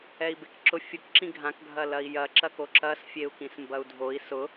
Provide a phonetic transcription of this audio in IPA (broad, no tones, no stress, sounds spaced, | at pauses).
ɛ i̯ b e k ǁ ʊ fʲ ʊ k ǁ ĩ ɡʱ ã k ɡʱ ɐ l ɐ i̯ j ɐ ǁ ɐ k o ǁ ɐ s fʲ e u̯ k ĩ s m b ɐ u̯ dʱ o i̯ s ʊ